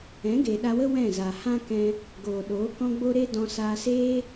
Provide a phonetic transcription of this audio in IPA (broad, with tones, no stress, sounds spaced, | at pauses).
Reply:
ɛ̃˨˦ ɡ eː˨ ɗ a˧ w ə˦ w ɛ̃˦˨ z a˨ h ã˦ k ɛ̃˧ | ɡ oː˨ ɗ oː˨˦ k ɔ̃˦ ɡ͡b o˦ ɾ e˦ d ɔ̃˧ s aː˧ s eː˦